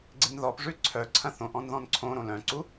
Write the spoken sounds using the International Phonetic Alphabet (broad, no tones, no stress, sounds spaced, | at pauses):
ɡ͡ǀ ɪ n ð ɔ p ʐ ʉ ǀʰ œ ǀʰ ɐ̃ θ õ ʔ ɔ̃ n ð ɔ̃ n ǀʰ õ ɾ õ l œ̃ ǀ u